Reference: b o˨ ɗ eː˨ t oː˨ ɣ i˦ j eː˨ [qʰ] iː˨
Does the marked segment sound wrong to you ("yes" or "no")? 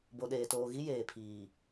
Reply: yes